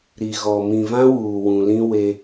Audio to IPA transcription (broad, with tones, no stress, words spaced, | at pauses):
ɾi˨ɣɔ˨ mĩ˨vã˦ wuː˨ wũ˨lĩ˦ we˦